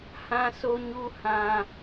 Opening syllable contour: high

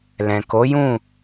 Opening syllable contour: low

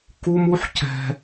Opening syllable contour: high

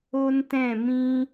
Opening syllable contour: high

